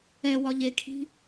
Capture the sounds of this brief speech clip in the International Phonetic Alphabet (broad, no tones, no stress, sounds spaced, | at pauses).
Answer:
ɛ w ɒ ʎ e kʰ i̤